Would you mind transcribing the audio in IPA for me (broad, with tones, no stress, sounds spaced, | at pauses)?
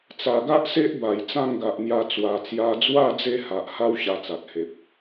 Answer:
t͡s a˨˩ ɡ a˦ ʔ s e˦ ʔ b a˨˩ j t͡s ã˥˧ ŋ ɡ a˨ ʔ n̪ j a˧ t͡s w a˨˩ t͡s j a˧ d͡z w a˥˧ d͡z e˦ h a˨ ʔ h a˦ w ɕ a˧ t͡s a˨ t̚ h e˨ p̚